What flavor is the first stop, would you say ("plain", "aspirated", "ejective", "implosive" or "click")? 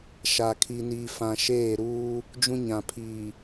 aspirated